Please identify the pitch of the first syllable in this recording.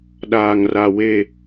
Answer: low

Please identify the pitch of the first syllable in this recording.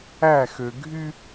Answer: falling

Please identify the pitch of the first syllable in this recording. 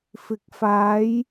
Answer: rising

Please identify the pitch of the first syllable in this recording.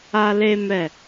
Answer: high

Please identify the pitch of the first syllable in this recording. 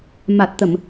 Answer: low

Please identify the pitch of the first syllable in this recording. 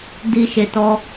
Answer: low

